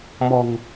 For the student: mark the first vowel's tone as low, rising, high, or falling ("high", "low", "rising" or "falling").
low